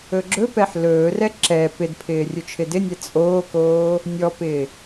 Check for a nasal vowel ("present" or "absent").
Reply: absent